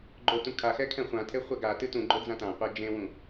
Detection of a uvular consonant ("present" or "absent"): present